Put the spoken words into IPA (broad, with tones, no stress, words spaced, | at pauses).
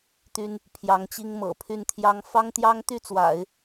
t̪y˥n | pʰjɑ˧˥ŋt͡ɕi˥ŋ mɤ̰˨˩pʰy˥˩nt̪ʰjɑ˥ŋ fɑ˥ŋt̪jɑ˥ŋt̪y˥˩t͡swa̰˨˩˦ɪ̯